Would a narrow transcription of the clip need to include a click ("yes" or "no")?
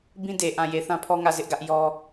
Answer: no